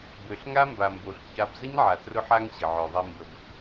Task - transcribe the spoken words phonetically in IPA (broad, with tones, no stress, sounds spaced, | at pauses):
b ø˨ ɬ ŋ a˦ m b a˨ m b o˨ ɬ ç a˧ b z ə˦ ɲ ʕ a˨ t r ʊ˧ ħ a˧ ŋ ɕ ə˨ ʕ œ˨ ðˤ i˧ m b ə˧ b